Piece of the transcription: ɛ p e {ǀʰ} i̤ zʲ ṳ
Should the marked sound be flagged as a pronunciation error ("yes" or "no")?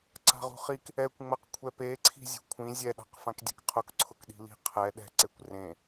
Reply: no